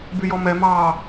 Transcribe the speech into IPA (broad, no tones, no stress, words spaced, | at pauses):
byjɔmɛ mɑ